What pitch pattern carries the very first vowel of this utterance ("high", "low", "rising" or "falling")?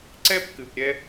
high